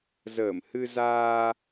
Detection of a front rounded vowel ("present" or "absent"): absent